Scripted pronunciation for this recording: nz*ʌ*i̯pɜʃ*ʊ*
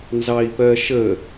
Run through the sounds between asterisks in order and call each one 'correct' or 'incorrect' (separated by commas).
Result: incorrect, incorrect